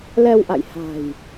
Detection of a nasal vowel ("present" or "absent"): absent